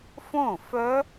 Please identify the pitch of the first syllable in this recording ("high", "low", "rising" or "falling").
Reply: falling